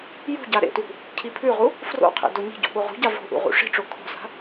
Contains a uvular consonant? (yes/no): yes